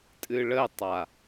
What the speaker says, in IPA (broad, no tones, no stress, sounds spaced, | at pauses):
tʼ ɨ ɭ ə tˤ a